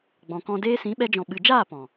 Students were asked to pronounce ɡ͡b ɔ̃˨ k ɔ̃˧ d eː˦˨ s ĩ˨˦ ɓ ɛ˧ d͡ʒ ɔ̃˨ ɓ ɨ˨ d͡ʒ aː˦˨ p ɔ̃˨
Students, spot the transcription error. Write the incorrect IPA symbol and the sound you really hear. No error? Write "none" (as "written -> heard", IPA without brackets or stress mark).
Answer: eː˦˨ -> eː˧